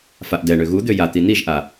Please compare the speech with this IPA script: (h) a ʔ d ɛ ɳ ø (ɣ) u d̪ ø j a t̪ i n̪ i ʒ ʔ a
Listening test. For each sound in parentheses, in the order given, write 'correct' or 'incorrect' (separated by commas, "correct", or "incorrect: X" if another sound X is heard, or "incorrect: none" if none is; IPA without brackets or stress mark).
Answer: incorrect: f, correct